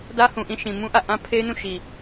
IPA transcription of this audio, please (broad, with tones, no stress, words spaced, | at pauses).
dä˦hũ˨ʔĩ˦˨ ʃĩ˨ mũ˦ʔä˦˨ ʔã˦ pʰe˦ɪ̯nũ˦˨ ʃi˨